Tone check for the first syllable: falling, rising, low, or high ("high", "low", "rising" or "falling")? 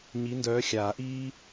rising